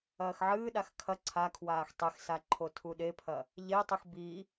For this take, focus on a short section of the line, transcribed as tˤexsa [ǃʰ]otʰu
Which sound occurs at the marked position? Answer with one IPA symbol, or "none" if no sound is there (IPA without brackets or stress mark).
ǃʰ